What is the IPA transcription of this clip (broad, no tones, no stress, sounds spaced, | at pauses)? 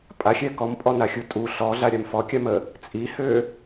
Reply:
pʼ a xʲ ɛ k ɔ m pʼ ɔ n a xʲ u tʼ u ɬ ɔ ɮ a ɾʲ a m f ɔ kʲ a m ə | t͡sʼ i h ø